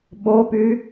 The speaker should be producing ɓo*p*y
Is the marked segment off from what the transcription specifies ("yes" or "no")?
no